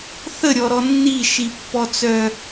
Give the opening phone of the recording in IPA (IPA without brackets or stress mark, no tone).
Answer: θ